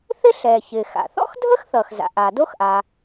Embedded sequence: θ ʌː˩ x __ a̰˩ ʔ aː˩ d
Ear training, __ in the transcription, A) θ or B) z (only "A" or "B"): B